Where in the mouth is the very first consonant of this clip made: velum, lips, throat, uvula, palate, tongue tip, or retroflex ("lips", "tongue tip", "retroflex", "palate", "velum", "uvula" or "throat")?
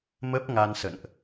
lips